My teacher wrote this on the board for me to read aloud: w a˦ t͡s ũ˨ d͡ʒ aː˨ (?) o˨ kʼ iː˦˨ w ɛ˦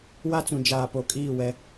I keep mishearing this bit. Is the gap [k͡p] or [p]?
p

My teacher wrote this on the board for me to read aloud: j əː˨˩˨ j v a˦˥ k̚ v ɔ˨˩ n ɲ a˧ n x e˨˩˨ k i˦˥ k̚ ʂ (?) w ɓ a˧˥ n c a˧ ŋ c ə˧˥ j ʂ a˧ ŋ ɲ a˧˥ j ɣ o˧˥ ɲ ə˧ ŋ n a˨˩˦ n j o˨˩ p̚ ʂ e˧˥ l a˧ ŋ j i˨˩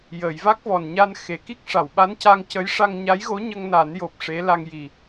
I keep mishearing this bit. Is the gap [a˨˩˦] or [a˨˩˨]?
a˨˩˨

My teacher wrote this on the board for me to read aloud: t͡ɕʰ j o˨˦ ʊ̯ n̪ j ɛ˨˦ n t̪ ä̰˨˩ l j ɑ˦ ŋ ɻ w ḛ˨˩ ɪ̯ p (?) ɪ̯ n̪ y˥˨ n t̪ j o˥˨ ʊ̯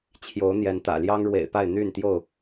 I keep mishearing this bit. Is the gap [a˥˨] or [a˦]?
a˥˨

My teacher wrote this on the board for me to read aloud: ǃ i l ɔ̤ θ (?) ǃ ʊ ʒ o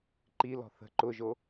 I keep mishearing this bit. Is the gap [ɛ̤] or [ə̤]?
ə̤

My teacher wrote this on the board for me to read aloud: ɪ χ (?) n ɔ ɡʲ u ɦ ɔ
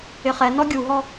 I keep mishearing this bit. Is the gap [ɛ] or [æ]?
ɛ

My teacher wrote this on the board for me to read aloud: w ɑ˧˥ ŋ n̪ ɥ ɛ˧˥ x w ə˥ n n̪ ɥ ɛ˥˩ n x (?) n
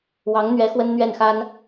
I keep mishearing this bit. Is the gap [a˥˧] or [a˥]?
a˥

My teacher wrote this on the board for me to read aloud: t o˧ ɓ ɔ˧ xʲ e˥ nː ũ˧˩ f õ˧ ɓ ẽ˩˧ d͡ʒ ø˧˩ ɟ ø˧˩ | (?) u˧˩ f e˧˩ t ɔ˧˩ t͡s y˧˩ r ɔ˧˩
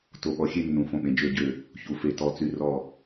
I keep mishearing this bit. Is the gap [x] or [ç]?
ç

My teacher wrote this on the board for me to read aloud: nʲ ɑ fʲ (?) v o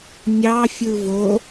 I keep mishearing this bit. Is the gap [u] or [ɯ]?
ɯ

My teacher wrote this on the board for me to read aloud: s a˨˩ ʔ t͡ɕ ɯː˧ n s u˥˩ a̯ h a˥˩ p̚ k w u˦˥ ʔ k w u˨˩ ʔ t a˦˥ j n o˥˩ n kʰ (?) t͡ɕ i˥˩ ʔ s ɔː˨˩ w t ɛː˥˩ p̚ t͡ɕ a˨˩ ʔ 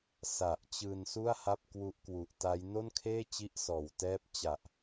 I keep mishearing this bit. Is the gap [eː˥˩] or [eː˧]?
eː˥˩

